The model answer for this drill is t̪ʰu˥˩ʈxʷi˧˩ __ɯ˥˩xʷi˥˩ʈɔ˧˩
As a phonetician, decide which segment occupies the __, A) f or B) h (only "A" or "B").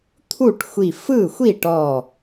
A